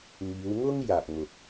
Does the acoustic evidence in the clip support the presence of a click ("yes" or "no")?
no